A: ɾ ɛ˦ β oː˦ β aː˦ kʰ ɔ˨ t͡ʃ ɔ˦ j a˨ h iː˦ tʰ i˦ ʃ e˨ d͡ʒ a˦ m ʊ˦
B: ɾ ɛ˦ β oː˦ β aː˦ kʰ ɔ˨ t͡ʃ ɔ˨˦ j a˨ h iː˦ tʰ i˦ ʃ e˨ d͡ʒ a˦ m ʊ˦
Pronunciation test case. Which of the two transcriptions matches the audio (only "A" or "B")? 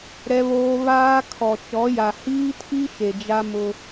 B